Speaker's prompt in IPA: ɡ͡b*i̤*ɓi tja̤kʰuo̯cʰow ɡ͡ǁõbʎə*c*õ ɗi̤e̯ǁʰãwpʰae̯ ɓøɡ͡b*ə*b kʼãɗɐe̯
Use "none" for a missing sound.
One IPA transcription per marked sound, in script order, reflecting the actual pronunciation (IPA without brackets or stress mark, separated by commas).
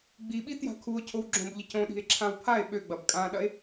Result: i, c, ɐ